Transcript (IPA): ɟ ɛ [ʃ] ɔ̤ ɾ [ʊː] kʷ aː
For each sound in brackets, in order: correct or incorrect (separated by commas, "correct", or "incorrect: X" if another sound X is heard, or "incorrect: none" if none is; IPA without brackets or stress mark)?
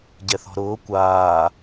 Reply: incorrect: θ, correct